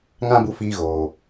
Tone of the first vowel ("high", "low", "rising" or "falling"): high